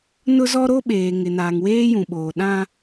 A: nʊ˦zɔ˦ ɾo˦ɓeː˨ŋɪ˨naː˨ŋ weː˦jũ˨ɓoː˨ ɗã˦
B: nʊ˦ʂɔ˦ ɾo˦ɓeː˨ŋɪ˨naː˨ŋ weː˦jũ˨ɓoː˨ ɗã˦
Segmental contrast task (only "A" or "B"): A